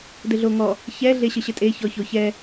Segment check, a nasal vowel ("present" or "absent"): absent